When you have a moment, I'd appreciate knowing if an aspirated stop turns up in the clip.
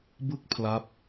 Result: yes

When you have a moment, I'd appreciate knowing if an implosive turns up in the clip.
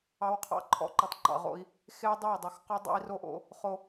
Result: no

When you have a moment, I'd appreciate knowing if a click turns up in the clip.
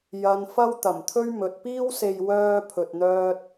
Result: no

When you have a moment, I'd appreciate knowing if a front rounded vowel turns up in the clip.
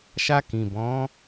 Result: no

